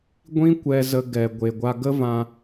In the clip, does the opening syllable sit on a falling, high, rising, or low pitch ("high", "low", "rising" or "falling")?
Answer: high